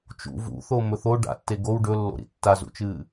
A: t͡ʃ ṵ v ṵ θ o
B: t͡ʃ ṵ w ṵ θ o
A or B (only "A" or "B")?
A